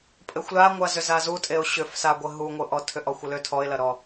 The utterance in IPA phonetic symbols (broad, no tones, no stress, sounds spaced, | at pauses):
pʼ ɘ xʷ l a ŋʷ a z ʏ z a z u tʼ e ʊ̯ ɕ ʏ f s a ɡʷ ɘ ɦ u ŋʷ ɘ ʔ ɔ tʰ ʏ ʔ ɔ xʷ e l ʏ tʰ ɔ ɪ̯ l ɐ ɾ ɔ